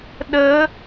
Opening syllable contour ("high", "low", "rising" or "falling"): rising